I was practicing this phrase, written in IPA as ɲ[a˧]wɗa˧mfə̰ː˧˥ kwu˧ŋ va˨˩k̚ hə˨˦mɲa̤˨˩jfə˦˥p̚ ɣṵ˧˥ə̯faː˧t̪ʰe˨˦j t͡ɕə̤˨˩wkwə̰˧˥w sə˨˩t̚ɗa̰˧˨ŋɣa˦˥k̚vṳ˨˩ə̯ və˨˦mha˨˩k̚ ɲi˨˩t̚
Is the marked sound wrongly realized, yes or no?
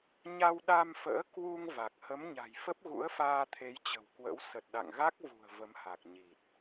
no